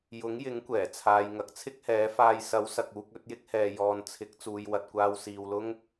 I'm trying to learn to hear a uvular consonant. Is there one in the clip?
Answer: no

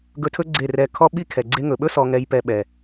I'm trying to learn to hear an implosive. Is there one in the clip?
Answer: yes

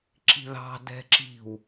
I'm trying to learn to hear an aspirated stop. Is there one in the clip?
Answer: no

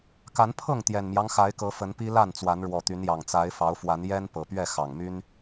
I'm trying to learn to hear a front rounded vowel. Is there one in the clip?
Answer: yes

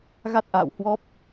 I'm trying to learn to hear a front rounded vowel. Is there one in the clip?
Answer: no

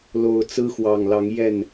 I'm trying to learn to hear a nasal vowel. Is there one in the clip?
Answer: no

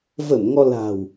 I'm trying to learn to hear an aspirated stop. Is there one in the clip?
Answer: no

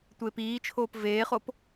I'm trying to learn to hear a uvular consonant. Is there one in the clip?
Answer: yes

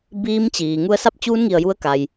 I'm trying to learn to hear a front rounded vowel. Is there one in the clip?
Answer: no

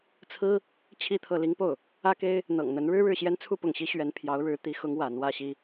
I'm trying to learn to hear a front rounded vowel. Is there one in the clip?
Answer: no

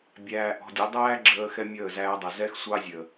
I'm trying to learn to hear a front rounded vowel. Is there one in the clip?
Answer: no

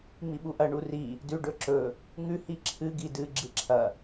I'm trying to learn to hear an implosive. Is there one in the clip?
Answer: yes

